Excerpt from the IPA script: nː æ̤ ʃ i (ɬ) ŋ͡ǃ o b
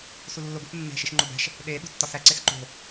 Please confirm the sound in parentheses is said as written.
no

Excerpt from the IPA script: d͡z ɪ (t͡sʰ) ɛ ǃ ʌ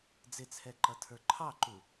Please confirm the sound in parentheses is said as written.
yes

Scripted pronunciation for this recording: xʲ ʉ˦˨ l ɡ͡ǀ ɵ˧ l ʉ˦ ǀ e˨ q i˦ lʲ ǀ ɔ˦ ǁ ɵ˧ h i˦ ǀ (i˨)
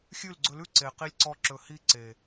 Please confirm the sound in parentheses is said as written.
no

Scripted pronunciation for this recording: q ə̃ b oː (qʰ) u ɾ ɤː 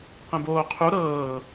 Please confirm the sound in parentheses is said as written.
yes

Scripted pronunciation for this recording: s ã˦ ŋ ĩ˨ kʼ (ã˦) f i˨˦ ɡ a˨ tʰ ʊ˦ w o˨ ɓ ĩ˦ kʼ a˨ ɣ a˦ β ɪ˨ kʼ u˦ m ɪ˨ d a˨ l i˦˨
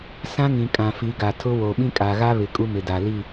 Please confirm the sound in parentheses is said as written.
no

